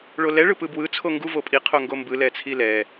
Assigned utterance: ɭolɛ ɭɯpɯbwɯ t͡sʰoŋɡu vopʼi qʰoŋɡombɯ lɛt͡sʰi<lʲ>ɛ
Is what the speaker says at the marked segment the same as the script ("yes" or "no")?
no